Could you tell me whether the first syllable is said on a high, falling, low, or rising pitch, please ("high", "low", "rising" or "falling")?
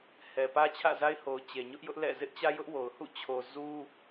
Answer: low